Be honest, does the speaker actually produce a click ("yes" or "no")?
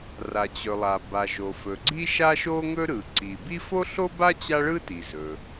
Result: yes